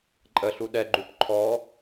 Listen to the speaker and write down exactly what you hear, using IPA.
ǃʼ ə ɬ u ɗ ɛ ɡ͡ǃ u p ǃʰ ɔ

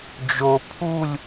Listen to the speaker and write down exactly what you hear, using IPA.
d͡ʒ o pʰ u lʲ

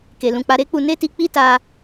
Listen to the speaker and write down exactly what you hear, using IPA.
k e˧ l ũ˧ k͡p a˦ ɾ e˦ k͡p u˧ n e˦ t i˧ k͡p i˦ t a˧

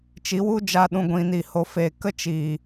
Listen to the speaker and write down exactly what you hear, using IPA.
t͡ʃ i˨˦ w u˦ d͡ʒ a˧ ɗ ũ˨ ɡʷ ĩ˨ n i˨ h o˨ f e˨ k ə˦ t͡ʃ iː˨

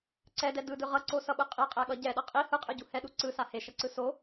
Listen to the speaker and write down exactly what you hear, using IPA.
ǀ ɛ d ɛ d ɯ d ɯ ʁ ʌ ǀ o s ʌ ɓ ɯ qʼ e qʼ ɛ ɠ ʌ ɟ ɛ ɗ ʌ qʼ i h ɯ qʼ ɯ ɟ u h ɛ ɗ u ǀ ɯ s a h e ʃ ʌ ǀ ɯ s o

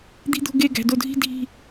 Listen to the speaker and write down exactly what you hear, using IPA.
d̪ i̤˧ d̪ o̤˧ ɡ e˧˩ ɡ æ̤˩˧ d o˧˩ dʱ i̤˥˧ dʱ i̤˧˩

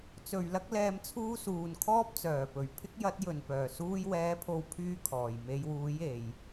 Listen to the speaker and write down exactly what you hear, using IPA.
t͡s ɵ˨˩ ɥ l ɐ˧ k̚ l ɛː˨ m t͡sʰ uː˧ s uː˨ n kʰ ɔː˥ p̚ t͡s œː˨˩ p ɵ˨˩ ɥ pʰ ɪ˥ k̚ j ɐ˨˥ t̚ j ɵ˨˩ n p œː˨˩ s uː˧ j w ɛː˨˥ pʰ o˨˧ w pʰ yː˥ kʰ ɔː˨˩ j m e˨˧ j w uː˨˥ j e˨˧ j

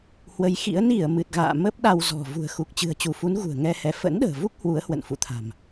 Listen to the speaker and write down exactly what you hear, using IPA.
h w ə˨˦ j x ḭ˧˥ ə̯ n i˧˩ ə̯ m ɨ˨˩ t̚ ɣ a̰ː˧˨ m əː˦˥ p̚ ɗ a˧ w z ɔ̤˨˩ v ṳ˨˩ ə̯ x u˨˩ k̚ t͡ɕ ɨ̤˨˩ ə̯ t͡ɕ u˧˩ f u˨˦ n ɣ ṳ˨˩ ə̯ ŋ ɛ˧ h ɛ˨˦ f ə̰˧˥ n ɗ ə̤ː˨˩ v u˦˥ k̚ h w u˨˦ ə̯ h w ə̰˧˨ n f ṵ˧˨ t̪ʰ a̤˨˩ m

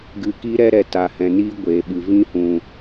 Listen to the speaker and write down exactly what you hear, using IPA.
ɡ ɨ˧ k i˦ ɾ ɛ˦ ɾ ɛ˧ t a˨ h ɛ̃˨ n iː˦ ɡʷ eː˨ ɓ ɨ˨ v ĩ˦ h ũ˨

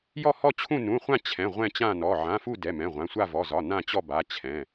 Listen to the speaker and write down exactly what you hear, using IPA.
j ɔ˦˨ h ɔ˦˨ t͡ɕʰ ũ˦˨ n ũ˩˧˩ χʷ ã˦˨ t͡ɕʰ ɛ̃˩˧˩ ʁʷ ɛ̃˦˨ t͡ɕ ã˦˨ n ɔ˩˧˩ ʕ ã˩˧˩ f u˦˨ d ɛ˩˧˩ m ɛ̃˩˧˩ ʁʷ ã˩˧˩ sʷ a˦˨ v ɔ˩˧˩ z ɒ˩˧˩ n ã˦˨ t͡ɕ ɔ˦˨ b a˩˧˩ t͡ɕʰ ɛ̃˩˧˩

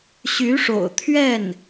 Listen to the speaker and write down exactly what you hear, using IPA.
ɕ y˧˥ ʂ o̰˨˩ ʊ̯ t̪ʰ ɥ ɛ˥˩ n

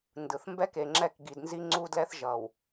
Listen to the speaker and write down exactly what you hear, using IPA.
n d ɯ˨ θ m b ɛ˦ k e˨ ŋ͡ǁ ɛ˦˨ k ɡ i˨ d n z i˦ ŋ͡ǀ u˦ d l ɛ˦ θ ʒ ʌ˨ w

